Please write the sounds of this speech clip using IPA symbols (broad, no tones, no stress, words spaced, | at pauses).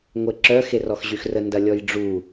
ŋʷeǁœ xerɔxʑyxrə ndɐlʲɔjɖ͡ʐu